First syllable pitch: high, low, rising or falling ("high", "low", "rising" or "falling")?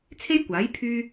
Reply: high